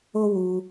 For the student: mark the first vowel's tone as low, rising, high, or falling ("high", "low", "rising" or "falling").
high